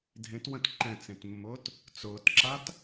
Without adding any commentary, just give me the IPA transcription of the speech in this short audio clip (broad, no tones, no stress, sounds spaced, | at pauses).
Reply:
dʱ ẽ t w ə̃ t ǃ ɛ̃ t͡s ẽ t mː ʊː t | t͡s ʊː t ǁ a t